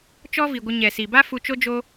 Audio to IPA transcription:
t͡ʃ ɔ˦ v i˨ ɡʷ ə˧ ɲ ɛ˨ s i˨ b a˦ f u˧ t͡ʃ o˦ d͡ʒ o˦

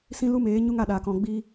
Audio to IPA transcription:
s ĩ˦ l u˦ m eː˨˦ ɲ u˦ ŋ a˧ ɗ aː˨ k ɔ̃˨ ɡ͡b iː˧

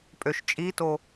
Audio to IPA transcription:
pʼ ø ʃ t͡ʃʼ i t o

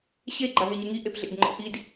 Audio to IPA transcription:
ɕ e ɡ͡ǃ a ɦ e ɲ ɯ ŋ i ʔ e p ɮ ḛ d ŋ͡ǃ ɔ̰ ʔ i d

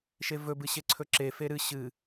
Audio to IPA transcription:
ʃ e v ɵ b ɨ ɕ e ǀʰ ɵ ǁ e f e ɾ ɨ ɕ ɨ

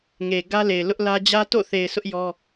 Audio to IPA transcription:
ŋ e˨ ɡ ä˦ l e˨ ɪ̯ l ʊ˦ ʔ l ä˦ d͡ʑ ä˦ t o̰˦˨ θ e˨ ɪ̯ s ʊ˦ ʔ j ɔ˦

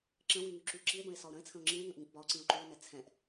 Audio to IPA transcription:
ǁ ə̃ w y ŋ y ǁ y ǁ i e̯ b ə̃ e̯ s ɒ o̯ ɾ ə̃ e̯ t͡sʰ ə̃ o̯ ŋ͡ǁ ĩ e̯ ŋ ə̃ ʔ ŋ ĩ ʔ b ɒ o̯ ǀ ĩ o̯ ǃ y o̯ n ɛ t͡sʰ ɛ̃ ʔ

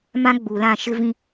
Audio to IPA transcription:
m ã˦ ɡ͡b u˨ l ã˦˨ ʃ ɪ˦ v ĩ˦

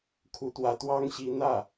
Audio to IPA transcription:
kʰ u˧˥ t̪ w ä˧˥ t̪ w ɑ˥ ŋ ɕ i˧˥ n̪ ä˥˩

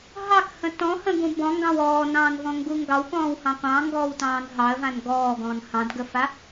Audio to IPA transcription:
ɦ ɑ k h ə̃ t ɔ̃ h ə̃ ɡ ũ b ɔ̃ ŋ ɡ ɑ̃ w ɔː n ɑ̃ː n v ɔ̃ ŋ ɡ u ŋ ɡ ɑ w k ɔ̃ː w h ɑ̃ qʷ ɑ̃ ŋ ɡ ɔː w t ɑ̃ː n ɦ ɑ ə̯ v ã n ɡ ɔː ɡ ɔ̃ː n h ɑ̃ d ɡ ə f a

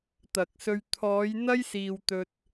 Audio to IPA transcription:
t̪ ɐ˨ k̚ s ɵ˧ ɥ t̪ʰ ɔː˨˧ j n̪ ɐ˥ j s iː˧ w t̪ ɵ˧ t̚

